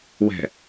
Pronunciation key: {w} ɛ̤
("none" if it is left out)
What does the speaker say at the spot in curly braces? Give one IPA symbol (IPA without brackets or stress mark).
w